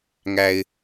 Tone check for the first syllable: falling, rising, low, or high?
high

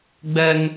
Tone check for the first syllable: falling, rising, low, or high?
high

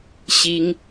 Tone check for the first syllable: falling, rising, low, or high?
high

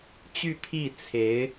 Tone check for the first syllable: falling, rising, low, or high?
falling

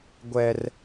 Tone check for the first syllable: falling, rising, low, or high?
high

